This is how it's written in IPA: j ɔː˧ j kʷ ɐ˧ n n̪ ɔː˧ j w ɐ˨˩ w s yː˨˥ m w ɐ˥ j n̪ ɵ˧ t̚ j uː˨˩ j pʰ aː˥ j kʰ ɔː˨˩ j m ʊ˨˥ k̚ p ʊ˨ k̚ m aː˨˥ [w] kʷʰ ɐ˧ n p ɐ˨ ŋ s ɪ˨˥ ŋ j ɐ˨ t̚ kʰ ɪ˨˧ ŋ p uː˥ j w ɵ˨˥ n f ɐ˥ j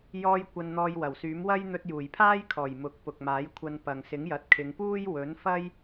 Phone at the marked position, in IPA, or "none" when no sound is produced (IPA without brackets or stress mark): j